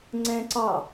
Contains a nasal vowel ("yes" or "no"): yes